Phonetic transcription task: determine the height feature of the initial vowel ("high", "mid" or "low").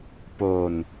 mid